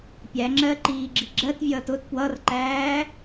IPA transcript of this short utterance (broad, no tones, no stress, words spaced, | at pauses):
pʲæŋ͡ǁɜ ǃiːɡ͡ǁiɡ͡ǁɜtvʲʌːt ʊt pwʌrǃæː